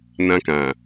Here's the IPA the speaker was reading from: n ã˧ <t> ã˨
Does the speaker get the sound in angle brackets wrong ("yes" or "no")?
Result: yes